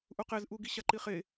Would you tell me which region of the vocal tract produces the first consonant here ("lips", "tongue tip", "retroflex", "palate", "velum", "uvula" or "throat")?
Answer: throat